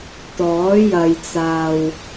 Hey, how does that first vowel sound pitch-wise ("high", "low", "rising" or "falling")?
rising